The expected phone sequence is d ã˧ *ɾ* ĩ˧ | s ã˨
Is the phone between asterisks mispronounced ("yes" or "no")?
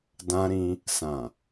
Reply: no